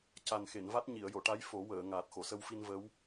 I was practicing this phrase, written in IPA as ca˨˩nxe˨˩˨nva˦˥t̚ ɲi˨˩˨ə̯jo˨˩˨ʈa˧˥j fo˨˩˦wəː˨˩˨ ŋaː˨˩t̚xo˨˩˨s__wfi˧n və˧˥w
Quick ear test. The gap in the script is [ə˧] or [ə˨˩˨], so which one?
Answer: ə˧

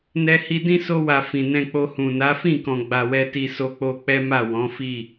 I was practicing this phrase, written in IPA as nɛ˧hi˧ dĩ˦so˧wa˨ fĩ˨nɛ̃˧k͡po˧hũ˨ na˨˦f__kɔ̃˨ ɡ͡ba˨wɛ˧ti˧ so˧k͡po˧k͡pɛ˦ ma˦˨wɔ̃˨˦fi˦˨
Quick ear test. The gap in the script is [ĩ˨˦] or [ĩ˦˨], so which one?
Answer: ĩ˦˨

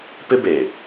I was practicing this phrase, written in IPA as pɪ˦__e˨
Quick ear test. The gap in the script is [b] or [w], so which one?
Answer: b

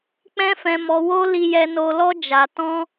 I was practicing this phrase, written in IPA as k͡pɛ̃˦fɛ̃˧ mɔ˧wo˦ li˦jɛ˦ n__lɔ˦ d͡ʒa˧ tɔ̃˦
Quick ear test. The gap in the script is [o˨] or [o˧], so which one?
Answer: o˧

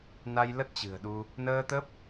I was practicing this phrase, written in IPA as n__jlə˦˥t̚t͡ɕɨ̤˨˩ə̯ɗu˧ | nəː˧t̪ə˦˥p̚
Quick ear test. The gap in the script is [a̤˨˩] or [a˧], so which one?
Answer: a˧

